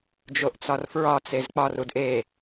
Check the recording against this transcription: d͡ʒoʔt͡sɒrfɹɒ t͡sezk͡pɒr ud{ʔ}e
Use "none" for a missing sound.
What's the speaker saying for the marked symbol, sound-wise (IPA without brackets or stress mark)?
ʔ